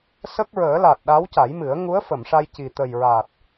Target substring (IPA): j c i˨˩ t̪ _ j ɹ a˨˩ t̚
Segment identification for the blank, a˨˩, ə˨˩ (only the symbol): ə˨˩